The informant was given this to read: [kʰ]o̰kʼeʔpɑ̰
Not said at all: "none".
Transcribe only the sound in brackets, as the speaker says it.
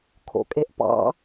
kʰ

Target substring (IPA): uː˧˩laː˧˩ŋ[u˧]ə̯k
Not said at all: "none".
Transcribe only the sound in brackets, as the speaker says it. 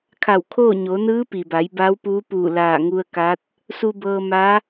u˧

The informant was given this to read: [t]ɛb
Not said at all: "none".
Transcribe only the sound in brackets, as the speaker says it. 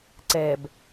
ǀ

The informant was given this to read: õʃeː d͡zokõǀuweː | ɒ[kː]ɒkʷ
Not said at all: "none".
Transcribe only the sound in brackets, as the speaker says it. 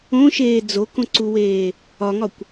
ŋ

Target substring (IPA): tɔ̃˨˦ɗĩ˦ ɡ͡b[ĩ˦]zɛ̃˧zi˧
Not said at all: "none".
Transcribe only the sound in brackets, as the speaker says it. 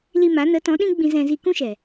ĩ˧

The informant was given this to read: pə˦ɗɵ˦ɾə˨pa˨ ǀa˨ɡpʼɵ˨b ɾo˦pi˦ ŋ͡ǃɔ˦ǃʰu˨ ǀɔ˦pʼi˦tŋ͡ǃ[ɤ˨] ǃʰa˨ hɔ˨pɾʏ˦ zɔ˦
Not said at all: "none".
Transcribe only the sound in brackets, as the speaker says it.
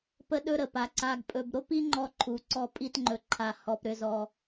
ɵ˨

